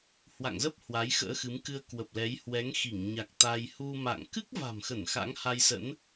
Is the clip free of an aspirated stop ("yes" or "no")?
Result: yes